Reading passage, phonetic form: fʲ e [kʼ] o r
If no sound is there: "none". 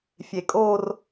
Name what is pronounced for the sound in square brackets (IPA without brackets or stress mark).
kʼ